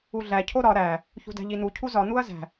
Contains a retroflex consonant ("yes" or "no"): no